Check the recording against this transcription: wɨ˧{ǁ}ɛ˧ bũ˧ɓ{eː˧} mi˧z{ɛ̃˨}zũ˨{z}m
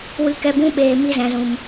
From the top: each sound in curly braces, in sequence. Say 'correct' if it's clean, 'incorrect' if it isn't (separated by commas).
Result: incorrect, incorrect, correct, incorrect